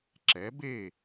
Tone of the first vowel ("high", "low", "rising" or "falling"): rising